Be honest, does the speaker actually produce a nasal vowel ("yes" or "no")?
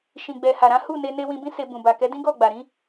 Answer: yes